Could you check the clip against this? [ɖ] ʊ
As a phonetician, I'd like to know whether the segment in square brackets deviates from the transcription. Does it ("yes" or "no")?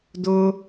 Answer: yes